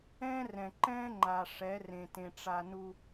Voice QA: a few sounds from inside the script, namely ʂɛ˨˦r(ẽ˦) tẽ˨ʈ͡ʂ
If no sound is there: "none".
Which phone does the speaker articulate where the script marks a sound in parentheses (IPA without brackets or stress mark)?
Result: ẽ˨